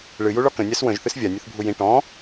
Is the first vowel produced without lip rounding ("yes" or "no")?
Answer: yes